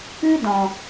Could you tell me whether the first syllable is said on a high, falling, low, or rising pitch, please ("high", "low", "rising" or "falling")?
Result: high